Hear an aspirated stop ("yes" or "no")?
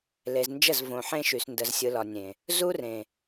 no